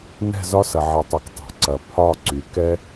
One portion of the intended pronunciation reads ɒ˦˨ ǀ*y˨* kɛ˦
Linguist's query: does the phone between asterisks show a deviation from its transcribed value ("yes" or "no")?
no